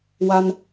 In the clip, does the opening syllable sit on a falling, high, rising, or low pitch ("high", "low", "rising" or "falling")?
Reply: high